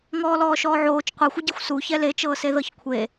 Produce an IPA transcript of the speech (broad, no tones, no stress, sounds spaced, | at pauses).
ŋ ɔː l ɔː ʃ ɔː ʕ oː t͡ʃ qʷ ɯ xʷ ɯ ɟ e xʷ s u ç ɛ l e t͡ʃ ɤː s e ð ɤ ç kʷʰ e